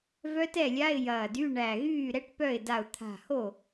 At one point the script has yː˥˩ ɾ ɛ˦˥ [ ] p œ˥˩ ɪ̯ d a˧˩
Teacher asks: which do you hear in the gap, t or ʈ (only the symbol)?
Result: ʈ